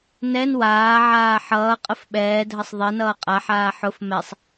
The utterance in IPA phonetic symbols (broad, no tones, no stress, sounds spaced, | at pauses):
n ɛ n w aː ʕ aː ħ ʌː qʼ ə f ɓ ɛː dʱ ə sˤ ðˤ e n ʌː qʼ a ħ aː ħ ʊ f m ɛ sˤ